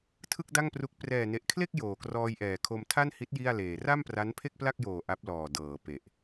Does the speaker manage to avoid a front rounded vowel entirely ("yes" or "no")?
yes